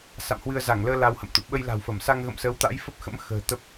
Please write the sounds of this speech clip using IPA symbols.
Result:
s a̰˧˨ m h w ɨ˧ ə̯ z a˧˩ ŋ l əː˧ l a˧ w h ə̰˧˨ m t̪ ṵ˧˨ ɓ ə˧ j l a̤˨˩ w f ə˧˩ m s a˧ ŋ ɣ ə̰˧˨ m s əː˨˦ w t̪ a̰˧˥ j f ə˦˥ p̚ x ə̰˧˥ m x ə̤ː˨˩ t̪ ə˦˥ p̚

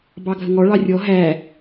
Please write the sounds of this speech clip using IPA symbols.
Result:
b ɑ ɡʱ ə ŋ ɔ ɭ ɑ rʲ ɔ ɦ æ

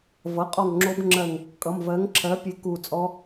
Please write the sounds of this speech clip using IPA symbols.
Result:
v ʌ˩˧˩ qʼ ɔ˧˩ ŋ ŋ͡ǁ o˦˥ b ŋ͡ǁ ɜ˧˩ ŋ | kʼ ʌ˩˧˩ m v ɜ˨˥ ŋ ǁʰ ɜ˨˥ pʲ e˨˥ k u˧˩ t͡sʼ ɔ˦˥

